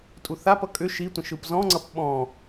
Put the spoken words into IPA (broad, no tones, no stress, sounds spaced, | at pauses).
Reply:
tʼ u θ a p ʌ kʼ ʏ ʃ i tʷ ə̃ ʃ ɯ p z ɔ̃ ŋ͡ǀ ʌ p ɓ ɔ̃